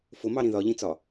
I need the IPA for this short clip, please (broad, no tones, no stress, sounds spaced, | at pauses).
f ʊ m ɑ ɾ ĩ ð ɒ ʎ ĩ t͡s ɒ